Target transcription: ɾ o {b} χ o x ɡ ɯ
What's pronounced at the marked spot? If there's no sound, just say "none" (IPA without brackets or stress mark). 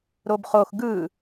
b